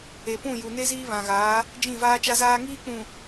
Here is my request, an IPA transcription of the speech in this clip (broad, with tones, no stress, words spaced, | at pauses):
e˨pũ˦˨ju˨ ne˦ziː˦βã˨ɣaː˨˦ | d͡ʒĩ˦˨vaː˦t͡ʃa˦zaː˦ ŋiː˦k͡pũ˨